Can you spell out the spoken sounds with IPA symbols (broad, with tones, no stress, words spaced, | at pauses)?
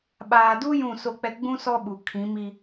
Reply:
ɓaː˨du˦ jũ˦˨so˦˨k͡pɛ˦ ɡ͡bũ˦ sɔ˦ɓu˨ kʰĩ˨˦mi˦